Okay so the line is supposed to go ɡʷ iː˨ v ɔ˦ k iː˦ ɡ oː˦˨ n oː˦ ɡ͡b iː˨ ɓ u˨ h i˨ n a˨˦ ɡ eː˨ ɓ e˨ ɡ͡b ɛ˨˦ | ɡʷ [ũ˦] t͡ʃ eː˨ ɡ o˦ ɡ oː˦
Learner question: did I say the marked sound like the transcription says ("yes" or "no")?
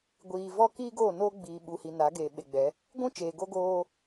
yes